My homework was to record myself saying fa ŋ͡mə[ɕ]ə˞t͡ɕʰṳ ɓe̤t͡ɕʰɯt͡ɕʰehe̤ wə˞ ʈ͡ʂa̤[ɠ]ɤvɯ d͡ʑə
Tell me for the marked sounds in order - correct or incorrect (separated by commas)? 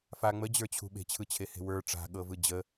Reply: incorrect, correct